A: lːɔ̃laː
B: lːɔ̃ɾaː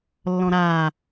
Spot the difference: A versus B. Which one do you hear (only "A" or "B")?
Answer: B